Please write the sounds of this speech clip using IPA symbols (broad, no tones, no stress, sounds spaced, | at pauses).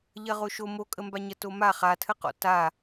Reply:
ʎ ɐ ʁ o ʃ o m o kʼ ə m b a ɲ ɐ t o m a χ a tʰ ə q ɔ̰ t a